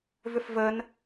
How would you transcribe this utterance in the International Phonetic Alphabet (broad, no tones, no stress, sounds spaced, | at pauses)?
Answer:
v ʏ f v ə n